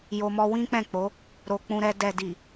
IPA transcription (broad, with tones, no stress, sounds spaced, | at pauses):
j o˧ m ɔ˧ w ĩ˦ k͡p ɛ̃˦˨ k͡p o˨˦ | ɾ o˧ k͡p ũ˧ ɾ ɛ˧ d ɛ˨ d i˨